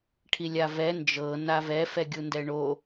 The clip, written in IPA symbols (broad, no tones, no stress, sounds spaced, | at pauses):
ʈʰ i lʲ a v ɛ n d͡ʒ ɤ n a v ɛ f ɛ ɡʲ u n d ɛ ɳ o